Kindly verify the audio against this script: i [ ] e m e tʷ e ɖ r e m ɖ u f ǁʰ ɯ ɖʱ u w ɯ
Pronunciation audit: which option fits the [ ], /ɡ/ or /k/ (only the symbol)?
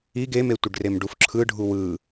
ɡ